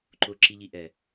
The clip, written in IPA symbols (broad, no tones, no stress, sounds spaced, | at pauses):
ǃ ʊ ǁ i ʎ i ʔ ɛ